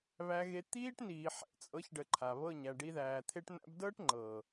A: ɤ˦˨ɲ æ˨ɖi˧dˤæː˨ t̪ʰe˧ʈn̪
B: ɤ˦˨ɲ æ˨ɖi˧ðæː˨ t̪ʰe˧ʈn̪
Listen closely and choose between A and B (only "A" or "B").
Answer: B